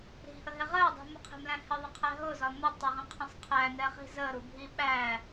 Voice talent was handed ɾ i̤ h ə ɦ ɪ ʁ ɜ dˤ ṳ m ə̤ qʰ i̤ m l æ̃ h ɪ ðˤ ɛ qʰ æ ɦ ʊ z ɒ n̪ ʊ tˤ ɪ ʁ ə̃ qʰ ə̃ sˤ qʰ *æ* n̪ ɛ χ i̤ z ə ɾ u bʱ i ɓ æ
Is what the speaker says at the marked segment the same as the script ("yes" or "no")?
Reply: yes